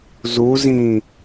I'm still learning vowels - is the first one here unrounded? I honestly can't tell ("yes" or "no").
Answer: no